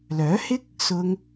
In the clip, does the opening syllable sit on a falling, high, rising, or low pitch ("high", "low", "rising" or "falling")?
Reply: rising